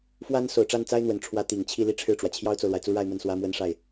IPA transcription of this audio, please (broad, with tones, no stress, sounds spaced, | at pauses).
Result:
f w a˥ n s o˨˩ ʊ̯ ʈ͡ʂ a˥˩ n t͡s a˥ ɪ̯ n̪ w ə˨˩ n ʈ͡ʂʰ w ä˧˥ t̪ i˨˩ ŋ t͡ɕʰ i˥˧ l i˥˧ ʈ͡ʂʰ ɻ̩˥˩ ʈ͡ʂ w ä˩ t͡ɕʰ j ɑ˥ ʊ̯ t͡s o˨ ʊ̯ l w a˩ ɪ̯ t͡s u˥ ɻ a˥˧ ɪ̯ m ə˥˩ n s w ä˥ m w ə˥ n ʂ a˥˩ ɪ̯